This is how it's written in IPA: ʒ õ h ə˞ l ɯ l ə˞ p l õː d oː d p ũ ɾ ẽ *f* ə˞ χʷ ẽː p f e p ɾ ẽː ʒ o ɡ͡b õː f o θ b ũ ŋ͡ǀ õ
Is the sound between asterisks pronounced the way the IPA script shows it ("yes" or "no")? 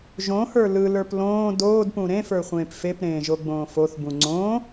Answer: yes